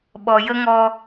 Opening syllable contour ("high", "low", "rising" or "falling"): low